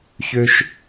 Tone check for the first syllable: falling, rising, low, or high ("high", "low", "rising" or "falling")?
low